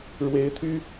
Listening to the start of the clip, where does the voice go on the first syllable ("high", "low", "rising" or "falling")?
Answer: rising